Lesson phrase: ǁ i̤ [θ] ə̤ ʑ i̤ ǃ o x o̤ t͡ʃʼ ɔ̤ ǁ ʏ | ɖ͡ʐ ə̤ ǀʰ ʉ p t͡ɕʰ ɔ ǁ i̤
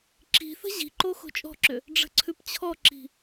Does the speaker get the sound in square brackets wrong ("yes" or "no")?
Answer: no